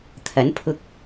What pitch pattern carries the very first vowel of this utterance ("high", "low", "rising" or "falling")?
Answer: rising